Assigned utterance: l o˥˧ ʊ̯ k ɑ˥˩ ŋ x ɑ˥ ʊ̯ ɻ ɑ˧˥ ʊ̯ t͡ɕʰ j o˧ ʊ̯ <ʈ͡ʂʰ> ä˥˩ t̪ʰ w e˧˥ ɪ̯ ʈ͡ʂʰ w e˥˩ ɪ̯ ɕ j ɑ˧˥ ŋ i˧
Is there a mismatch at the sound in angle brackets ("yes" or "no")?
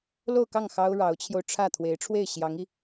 no